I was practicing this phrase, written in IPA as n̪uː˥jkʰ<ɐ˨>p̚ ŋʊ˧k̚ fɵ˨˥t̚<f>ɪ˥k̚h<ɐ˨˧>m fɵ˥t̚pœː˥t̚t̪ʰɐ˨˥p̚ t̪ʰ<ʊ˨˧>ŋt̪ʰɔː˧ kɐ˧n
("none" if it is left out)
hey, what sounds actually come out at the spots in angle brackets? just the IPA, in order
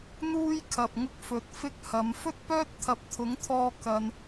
ɐ˨, f, ɐ˨˧, ʊ˨˥

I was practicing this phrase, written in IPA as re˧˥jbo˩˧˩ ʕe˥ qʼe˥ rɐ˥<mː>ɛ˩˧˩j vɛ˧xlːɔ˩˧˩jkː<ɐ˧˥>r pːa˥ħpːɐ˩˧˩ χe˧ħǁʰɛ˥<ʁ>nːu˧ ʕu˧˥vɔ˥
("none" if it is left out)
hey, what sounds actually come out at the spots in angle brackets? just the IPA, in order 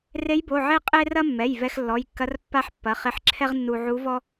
mː, ɐ˧˥, ʁ

